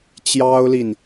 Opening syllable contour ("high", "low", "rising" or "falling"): high